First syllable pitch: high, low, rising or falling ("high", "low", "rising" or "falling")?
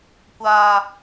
high